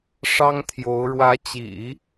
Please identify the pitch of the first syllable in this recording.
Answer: high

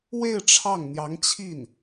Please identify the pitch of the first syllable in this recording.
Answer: falling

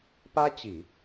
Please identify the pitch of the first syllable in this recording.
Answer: high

